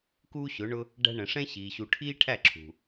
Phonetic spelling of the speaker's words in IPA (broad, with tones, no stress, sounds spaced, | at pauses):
k uː˦ ɕ ʊ˨˦ ɳ ʊ˦ | ɖ æ̤˧ ɳ ə̃˨ ʂ ɛ̃˦ ɕ iː˨ ɕ u˨ ʈʰ iː˦ ʈʰ æ˦˨ ǁʰ ṳ˨